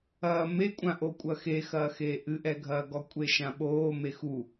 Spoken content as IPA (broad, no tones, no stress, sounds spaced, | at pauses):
ɐː m e kʷʼ ã ʔ o kʷʼ ɐ x e x ɐː x eː ʔ ɨ ʔ ɛ ɡʱ ɐː ɡ ɔ kʷʼ e ʃ ã ɓ oː m e x u